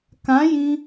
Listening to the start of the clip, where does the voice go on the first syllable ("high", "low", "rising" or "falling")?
rising